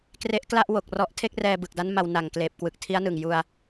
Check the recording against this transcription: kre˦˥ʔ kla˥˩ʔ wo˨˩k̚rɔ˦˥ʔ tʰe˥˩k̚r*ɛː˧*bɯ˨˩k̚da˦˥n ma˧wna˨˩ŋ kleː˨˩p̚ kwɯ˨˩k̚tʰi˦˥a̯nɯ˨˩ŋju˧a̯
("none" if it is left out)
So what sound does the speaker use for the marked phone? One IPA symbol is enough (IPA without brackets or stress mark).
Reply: ɛː˧